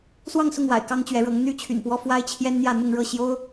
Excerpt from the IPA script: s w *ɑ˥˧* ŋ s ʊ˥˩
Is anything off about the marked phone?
no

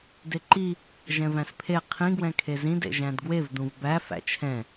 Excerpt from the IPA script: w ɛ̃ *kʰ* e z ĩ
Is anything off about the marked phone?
no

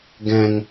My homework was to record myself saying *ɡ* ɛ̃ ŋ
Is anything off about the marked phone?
no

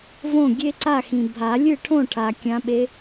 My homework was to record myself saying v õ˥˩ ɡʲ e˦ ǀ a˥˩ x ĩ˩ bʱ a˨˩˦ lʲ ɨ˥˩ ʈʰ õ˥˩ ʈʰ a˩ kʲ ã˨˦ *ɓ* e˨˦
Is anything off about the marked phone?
no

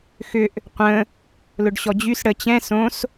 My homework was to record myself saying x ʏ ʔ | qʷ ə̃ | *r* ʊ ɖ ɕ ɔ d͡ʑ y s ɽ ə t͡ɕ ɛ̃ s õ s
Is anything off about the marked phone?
yes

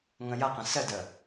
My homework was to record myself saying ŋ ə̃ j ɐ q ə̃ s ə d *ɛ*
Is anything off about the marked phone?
yes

